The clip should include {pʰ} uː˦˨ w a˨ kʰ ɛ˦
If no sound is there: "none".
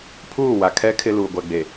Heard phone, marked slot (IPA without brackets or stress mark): pʰ